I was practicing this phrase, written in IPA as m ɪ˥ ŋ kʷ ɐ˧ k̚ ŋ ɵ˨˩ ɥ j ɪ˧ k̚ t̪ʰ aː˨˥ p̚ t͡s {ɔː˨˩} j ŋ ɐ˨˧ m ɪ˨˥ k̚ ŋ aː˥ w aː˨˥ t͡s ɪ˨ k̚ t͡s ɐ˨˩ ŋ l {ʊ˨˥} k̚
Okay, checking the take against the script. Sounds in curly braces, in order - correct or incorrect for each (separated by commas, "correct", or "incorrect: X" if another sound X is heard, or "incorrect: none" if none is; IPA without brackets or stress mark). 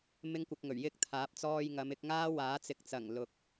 incorrect: ɔː˧, incorrect: ʊ˨